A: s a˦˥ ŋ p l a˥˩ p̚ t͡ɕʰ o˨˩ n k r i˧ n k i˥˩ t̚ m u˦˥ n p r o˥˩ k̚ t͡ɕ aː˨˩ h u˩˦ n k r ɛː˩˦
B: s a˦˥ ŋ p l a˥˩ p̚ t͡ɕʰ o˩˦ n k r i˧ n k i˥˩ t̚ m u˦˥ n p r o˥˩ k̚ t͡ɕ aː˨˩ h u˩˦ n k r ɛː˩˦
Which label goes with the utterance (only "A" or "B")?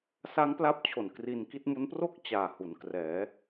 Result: A